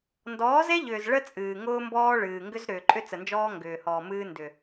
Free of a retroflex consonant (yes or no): no